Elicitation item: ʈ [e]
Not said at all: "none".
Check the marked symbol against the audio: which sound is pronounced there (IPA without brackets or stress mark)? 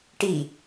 i